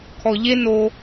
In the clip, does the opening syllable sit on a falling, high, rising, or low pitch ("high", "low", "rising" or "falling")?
low